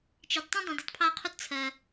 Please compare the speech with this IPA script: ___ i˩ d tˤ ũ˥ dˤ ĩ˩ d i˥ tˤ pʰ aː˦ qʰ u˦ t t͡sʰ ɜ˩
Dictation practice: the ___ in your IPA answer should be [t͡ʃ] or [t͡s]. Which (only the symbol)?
t͡ʃ